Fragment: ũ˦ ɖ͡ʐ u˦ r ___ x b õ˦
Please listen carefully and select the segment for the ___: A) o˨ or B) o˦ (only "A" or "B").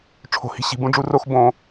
B